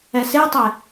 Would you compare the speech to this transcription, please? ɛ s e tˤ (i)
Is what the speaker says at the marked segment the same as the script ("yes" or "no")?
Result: no